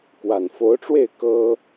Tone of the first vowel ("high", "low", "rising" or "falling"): low